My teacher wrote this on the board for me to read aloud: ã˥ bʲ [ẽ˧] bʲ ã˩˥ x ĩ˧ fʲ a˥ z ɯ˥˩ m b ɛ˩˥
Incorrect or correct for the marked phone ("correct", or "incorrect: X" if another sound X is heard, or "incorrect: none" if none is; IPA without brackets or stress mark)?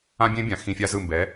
incorrect: ẽ˥